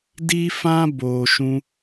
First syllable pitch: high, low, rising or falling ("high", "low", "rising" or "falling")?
high